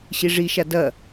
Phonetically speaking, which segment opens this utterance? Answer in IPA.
ɕ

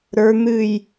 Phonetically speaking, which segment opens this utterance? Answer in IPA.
ɾ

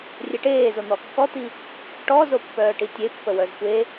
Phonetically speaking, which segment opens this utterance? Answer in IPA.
rʲ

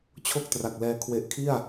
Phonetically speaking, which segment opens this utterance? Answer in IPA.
t͡ɕʰ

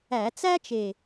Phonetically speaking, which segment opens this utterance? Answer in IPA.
æ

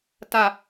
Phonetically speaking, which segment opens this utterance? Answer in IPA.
t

